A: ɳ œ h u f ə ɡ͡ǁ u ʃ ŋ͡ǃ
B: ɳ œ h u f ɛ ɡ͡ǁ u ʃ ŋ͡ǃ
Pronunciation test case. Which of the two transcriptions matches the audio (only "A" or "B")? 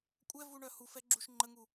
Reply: B